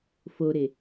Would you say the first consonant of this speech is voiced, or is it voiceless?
voiceless